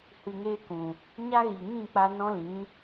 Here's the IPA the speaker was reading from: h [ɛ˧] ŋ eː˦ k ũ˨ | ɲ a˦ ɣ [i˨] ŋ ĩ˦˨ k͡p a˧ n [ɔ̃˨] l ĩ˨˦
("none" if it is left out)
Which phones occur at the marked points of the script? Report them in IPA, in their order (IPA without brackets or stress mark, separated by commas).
ɨ˧, i˨, ɔ̃˦